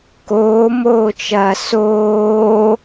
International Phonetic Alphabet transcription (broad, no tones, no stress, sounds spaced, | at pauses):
k oː m oː t͡ʃ ɐː s oː